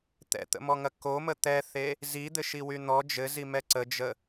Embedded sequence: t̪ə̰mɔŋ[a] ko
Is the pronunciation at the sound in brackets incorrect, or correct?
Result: incorrect